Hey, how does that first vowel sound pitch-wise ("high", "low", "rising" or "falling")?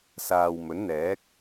low